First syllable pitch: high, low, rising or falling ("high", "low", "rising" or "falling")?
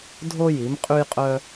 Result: high